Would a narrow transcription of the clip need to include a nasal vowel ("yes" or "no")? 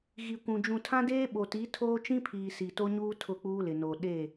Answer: yes